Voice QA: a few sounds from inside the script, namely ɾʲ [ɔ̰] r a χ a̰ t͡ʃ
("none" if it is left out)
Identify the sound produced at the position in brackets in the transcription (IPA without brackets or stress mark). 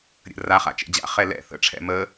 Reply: ə̰